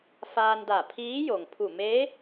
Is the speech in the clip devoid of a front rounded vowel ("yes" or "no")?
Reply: yes